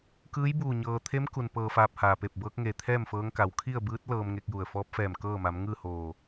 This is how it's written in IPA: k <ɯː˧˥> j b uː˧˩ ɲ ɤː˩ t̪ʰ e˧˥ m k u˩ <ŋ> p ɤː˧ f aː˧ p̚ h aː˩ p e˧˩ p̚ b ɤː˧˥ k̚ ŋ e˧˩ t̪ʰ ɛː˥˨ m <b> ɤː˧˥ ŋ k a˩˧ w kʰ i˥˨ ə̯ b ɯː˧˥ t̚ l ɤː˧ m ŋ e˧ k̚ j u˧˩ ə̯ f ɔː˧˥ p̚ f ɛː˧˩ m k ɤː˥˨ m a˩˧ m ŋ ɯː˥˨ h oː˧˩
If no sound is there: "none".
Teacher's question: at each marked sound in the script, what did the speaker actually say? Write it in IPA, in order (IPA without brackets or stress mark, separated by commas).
ɯː˧˥, n, f